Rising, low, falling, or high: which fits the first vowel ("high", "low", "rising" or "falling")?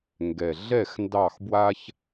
low